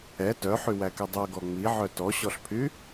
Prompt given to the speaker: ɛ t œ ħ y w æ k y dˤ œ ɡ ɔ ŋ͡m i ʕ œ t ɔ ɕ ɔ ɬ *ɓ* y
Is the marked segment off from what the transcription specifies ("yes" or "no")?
yes